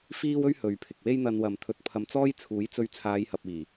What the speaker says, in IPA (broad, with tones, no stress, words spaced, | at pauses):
fiː˥wɵ˥ɥhɵ˨ɥpʰɪ˨k̚ we˥jn̪ɐ˧nwɐ˨m t̪ʰɵ˧t̚pʰɐ˧mt͡sɔː˥jt͡sʰuː˨˥j t͡sɵ˧ɥt͡sʰaː˨˧jhɐ˨p̚iː˨˩